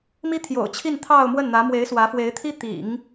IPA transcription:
m i˥ t̪ʰ j o̰˨˩ ʊ̯ t͡ɕʰ i˥˧ n t̪ʰ ɑ˥˧ ʊ̯ m w ə˥˩ n n̪ ä˧˥ m w e˧˥ ɪ̯ s w ä˧˥ f w e˧˥ ɪ̯ t̪ʰ i˥ t̪ ḭ˨˩˦ ŋ

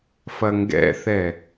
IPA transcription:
f ɐ ŋ ɡ ɛ̰ θ ɛ

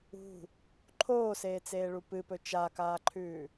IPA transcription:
ṳ | ǃʰ oː s eː t͡s eː ɭ u p ɨ p ɵ t͡ʃ a k aː ǃʰ ʉː

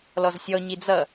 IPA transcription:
l ɔ z sʲ ɔ ɲ i d͡z ʌ

